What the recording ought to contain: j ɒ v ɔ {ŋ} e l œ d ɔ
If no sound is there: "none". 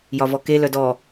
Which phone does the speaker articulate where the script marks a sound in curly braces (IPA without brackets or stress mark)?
k